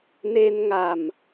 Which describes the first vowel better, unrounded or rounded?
unrounded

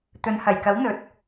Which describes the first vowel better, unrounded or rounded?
rounded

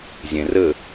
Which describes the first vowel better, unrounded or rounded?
unrounded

